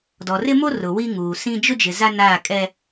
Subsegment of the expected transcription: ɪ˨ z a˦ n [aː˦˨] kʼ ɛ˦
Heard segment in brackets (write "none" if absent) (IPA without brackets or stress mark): aː˦˨